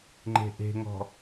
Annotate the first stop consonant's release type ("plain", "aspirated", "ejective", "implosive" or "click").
click